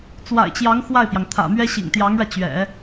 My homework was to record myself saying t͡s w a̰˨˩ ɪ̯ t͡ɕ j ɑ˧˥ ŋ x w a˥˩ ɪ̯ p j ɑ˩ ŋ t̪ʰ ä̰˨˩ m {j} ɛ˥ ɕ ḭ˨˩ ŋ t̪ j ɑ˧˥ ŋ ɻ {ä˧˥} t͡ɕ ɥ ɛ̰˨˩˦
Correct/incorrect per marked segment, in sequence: incorrect, incorrect

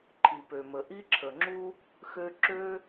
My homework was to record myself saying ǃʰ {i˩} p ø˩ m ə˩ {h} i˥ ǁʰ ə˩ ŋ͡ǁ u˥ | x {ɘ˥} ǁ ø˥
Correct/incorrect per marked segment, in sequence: correct, incorrect, incorrect

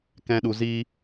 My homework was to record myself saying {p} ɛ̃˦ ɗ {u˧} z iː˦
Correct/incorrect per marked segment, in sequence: incorrect, correct

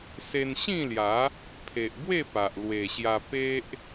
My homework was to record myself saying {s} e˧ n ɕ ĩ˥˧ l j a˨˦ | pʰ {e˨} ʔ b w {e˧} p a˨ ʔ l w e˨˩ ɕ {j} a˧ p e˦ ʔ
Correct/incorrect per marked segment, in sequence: correct, correct, incorrect, correct

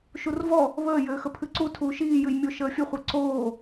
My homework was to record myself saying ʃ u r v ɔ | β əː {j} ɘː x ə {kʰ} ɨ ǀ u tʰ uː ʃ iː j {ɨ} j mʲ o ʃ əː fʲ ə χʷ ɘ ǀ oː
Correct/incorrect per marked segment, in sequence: correct, incorrect, correct

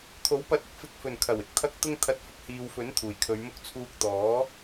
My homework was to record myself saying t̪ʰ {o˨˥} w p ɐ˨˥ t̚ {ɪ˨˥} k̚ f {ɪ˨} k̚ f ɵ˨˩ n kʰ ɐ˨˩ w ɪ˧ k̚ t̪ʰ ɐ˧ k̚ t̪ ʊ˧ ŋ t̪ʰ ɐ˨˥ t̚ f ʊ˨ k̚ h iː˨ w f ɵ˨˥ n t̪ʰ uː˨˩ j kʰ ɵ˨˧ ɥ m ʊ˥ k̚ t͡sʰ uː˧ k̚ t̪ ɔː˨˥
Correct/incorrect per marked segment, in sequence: correct, correct, correct

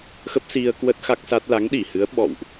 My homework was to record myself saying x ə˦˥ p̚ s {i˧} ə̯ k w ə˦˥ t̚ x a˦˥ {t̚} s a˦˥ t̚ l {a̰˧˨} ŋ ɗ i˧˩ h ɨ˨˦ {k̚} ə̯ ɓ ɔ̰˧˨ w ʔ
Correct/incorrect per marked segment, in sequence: correct, incorrect, incorrect, incorrect

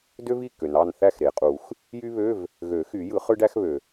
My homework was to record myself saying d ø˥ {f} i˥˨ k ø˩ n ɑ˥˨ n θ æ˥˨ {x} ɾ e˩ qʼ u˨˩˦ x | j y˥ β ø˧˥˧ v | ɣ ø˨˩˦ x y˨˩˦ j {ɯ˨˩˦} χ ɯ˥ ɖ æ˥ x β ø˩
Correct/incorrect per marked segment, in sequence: incorrect, correct, correct

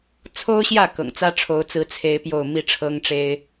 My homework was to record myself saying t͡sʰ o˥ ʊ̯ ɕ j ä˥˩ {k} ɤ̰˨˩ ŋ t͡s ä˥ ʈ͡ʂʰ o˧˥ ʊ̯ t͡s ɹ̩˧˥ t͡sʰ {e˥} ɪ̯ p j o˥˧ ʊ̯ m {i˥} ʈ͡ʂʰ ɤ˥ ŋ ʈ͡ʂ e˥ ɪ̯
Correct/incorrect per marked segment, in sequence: correct, correct, incorrect

